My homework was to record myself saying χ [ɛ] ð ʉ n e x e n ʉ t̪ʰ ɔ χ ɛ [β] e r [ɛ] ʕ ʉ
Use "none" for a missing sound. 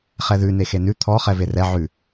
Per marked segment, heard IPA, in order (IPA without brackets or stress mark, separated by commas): ɛ, v, ɛ